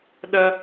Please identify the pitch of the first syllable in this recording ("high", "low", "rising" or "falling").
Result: high